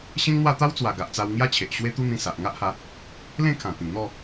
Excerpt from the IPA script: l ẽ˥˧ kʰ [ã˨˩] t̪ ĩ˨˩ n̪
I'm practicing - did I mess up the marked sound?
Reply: no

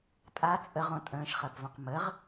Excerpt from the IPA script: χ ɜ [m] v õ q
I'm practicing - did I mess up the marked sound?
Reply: yes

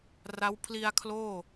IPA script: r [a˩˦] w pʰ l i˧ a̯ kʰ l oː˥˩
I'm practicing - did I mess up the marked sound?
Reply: yes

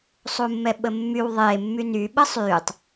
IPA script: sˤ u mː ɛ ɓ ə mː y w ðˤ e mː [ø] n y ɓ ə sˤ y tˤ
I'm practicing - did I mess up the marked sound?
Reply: yes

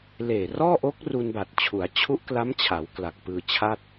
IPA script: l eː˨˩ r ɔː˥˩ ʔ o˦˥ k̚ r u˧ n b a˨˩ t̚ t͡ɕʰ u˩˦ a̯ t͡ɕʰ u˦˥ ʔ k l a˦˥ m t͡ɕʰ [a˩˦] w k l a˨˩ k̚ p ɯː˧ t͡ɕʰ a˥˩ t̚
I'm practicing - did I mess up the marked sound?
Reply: no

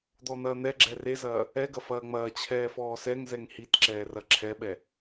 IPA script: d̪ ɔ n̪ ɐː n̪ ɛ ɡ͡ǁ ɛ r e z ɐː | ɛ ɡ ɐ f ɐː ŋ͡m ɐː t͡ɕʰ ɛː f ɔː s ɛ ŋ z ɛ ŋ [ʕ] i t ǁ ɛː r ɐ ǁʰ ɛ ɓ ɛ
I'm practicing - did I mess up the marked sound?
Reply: yes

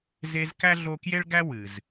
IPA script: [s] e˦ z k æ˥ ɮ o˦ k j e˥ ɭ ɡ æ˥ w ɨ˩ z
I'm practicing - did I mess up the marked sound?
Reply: yes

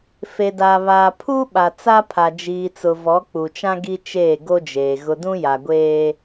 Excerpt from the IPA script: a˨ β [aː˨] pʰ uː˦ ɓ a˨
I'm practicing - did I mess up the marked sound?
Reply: no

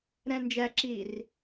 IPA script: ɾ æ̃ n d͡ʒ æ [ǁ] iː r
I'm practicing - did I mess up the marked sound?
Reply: no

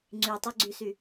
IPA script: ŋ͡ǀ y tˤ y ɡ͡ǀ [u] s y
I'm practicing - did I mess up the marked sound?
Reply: yes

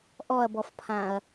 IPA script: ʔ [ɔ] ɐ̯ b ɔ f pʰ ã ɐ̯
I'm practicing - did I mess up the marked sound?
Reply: no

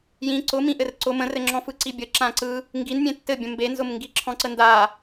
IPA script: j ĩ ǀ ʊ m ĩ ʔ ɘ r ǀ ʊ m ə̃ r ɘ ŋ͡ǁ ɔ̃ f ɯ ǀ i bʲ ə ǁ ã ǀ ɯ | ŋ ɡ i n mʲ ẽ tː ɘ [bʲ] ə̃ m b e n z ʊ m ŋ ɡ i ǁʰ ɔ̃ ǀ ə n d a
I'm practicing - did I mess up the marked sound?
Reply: no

